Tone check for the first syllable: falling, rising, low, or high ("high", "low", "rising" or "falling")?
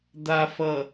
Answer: low